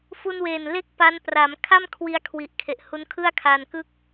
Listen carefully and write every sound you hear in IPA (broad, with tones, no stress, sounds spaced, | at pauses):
f u˧ n w eː˨˩ n l e˥˩ k̚ p a˦˥ n p r a˩˦ m kʰ a˥˩ m kʰ w i˦˥ a̯ kʰ w i˨˩ ʔ kʰ e˨˩ ʔ h u˦˥ n kʰ ɯ˥˩ a̯ kʰ a˧ n k ɯ˥˩ k̚